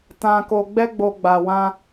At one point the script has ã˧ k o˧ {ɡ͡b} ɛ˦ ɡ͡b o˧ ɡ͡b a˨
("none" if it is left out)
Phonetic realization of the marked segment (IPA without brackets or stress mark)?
ɡ͡b